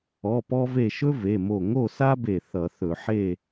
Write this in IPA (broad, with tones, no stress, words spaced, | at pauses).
ɔ˩˧˩pɔ˧ve˧˩ ʃɵ˥ve˩˧˩mo˧˩ ŋo˥˨sa˥be˧˩ θʌ˧˩˧θɵ˧˩˧ ħe˥˨